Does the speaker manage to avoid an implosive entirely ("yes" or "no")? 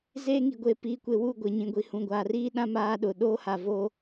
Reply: no